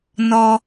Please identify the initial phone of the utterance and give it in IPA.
n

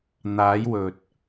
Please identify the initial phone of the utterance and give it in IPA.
n̪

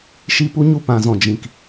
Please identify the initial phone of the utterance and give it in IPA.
ʃ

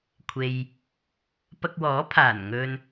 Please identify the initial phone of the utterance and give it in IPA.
kʷʰ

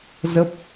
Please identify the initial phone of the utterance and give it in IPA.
z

